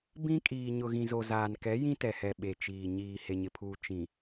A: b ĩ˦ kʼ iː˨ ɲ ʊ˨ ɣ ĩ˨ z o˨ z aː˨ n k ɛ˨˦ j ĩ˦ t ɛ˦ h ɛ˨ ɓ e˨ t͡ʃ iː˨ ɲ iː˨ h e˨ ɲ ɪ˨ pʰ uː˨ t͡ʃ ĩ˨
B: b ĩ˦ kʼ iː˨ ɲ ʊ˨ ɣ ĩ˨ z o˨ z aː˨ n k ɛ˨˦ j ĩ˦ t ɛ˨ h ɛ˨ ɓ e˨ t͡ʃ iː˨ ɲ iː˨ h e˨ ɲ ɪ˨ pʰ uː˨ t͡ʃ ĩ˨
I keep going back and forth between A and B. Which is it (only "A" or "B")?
B